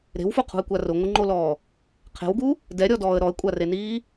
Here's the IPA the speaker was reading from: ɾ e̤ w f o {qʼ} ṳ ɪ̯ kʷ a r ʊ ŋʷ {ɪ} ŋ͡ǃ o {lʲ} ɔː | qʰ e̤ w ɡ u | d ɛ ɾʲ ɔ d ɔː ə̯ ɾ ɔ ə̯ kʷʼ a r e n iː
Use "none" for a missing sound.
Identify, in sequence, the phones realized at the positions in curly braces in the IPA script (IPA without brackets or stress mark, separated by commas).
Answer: qʰ, ɪ, l